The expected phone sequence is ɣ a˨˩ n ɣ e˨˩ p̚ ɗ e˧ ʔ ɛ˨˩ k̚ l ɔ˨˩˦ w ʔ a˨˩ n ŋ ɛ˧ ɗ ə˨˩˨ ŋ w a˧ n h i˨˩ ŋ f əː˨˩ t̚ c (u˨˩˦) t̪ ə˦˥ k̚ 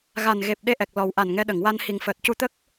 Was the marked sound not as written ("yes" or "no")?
yes